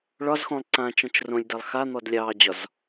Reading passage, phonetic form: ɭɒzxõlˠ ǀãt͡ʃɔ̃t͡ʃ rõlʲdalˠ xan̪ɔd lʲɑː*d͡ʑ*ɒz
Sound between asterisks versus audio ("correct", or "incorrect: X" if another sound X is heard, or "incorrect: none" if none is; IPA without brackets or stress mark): correct